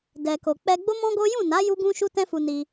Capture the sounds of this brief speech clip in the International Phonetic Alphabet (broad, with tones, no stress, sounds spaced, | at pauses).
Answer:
d ɛ˨ k o˨ k͡p ɛ˧ ɡ͡b o˦ m ɔ̃˦ ɡ o˦ j ũ˦˨ n a˨˦ j u˦ ɡ ũ˦ ʃ u˦ t ɛ̃˦ f u˧ n i˧